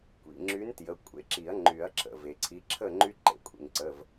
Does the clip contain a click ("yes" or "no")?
yes